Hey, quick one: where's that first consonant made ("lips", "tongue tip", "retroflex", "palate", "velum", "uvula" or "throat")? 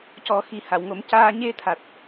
palate